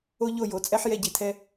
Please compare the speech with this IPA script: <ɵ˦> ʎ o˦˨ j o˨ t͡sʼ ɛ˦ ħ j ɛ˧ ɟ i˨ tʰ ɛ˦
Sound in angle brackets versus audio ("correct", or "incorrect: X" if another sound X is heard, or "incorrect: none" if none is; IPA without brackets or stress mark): incorrect: o˦